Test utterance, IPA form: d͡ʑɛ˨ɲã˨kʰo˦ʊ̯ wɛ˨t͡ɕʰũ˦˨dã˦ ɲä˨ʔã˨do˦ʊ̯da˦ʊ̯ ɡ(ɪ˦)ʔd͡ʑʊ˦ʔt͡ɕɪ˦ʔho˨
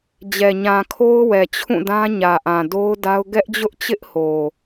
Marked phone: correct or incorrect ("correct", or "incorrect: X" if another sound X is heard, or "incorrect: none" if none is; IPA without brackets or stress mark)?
incorrect: ɛ˦